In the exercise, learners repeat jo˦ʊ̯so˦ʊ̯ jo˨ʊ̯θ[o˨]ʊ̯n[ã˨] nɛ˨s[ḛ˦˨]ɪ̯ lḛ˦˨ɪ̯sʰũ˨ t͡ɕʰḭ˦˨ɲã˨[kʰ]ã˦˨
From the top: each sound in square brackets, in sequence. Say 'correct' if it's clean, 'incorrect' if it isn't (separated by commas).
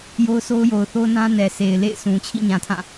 incorrect, incorrect, incorrect, incorrect